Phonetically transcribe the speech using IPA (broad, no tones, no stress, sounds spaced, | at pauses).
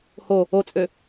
h o | o t͡sʼ ø